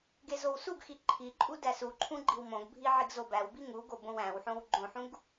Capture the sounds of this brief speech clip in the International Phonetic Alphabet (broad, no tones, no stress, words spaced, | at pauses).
ɡezowsuɡxi ǃʰiǃʼu dæsuǃʰũ ɡ͡ǃiwmõɡbʱi ʕiɡzobæwbi ŋuɡo bõwæ̃wħõw ɡ͡ǃõħũɡ